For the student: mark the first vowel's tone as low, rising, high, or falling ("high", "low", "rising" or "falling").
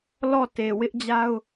falling